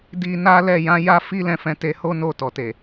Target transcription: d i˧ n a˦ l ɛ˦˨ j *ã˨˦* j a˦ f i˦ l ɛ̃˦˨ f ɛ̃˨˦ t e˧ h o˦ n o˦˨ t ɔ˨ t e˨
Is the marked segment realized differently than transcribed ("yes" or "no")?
no